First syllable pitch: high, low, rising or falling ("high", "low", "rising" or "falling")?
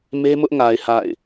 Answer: high